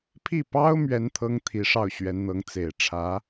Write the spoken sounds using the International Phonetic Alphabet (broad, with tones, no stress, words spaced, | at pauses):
pʰi˥˩pɑ˥ʊ̯ mɥɛ˥nt̪ʰɤ˥ŋ t̪ʰi˧˥ʂɑ˥˩ʊ̯ɕɥɛ˧˥nn̪ɤ˧˥ŋ t͡se˨˩ɪ̯ʈ͡ʂʰä˧˥